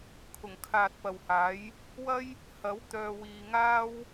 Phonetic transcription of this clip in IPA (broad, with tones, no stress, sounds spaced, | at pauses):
kʰ ʊ˨˩ ŋ kʰ aː˨ t̚ p ɐ˨ w h aː˨˥ j | w ɐ˥ j | h ɐ˨˥ w t̪ œː˨ w iː˨ ŋ aː˥ w